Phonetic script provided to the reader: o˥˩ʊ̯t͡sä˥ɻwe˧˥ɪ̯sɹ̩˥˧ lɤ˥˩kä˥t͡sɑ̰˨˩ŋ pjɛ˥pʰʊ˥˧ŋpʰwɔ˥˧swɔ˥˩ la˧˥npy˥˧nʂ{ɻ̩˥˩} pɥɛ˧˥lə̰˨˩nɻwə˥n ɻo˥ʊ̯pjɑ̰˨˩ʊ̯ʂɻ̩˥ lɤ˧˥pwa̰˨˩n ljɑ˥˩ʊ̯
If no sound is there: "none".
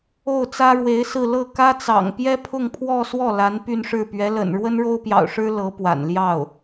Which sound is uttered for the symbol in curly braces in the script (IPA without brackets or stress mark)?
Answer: ɻ̩˥˩